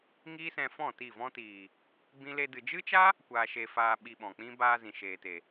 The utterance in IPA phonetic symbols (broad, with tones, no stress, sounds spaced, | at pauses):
ŋ iː˦ s ɛ̃˧ f ɔ̃˦˨ t i˦˨ v ɔ̃˦ t iː˨ | b ĩ˦ l e˦ d ɨ˧ d͡ʒ ɨ˦ t͡ʃ a˦ | kʷ aː˧ ʃ e˧ f aː˧ ɓ i˧ ɓ ɔ̃˨ k͡p ĩ˦ b aː˧ z ĩ˨ ʃ eː˨ t e˨